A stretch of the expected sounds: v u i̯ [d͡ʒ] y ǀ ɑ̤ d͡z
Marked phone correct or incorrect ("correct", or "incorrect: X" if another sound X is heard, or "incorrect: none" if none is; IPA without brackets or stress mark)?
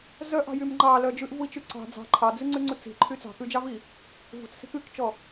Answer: incorrect: t͡ʃ